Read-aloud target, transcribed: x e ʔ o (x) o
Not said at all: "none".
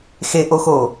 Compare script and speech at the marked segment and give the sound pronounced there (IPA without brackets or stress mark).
x